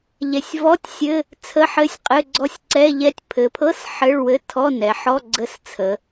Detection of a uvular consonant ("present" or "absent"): present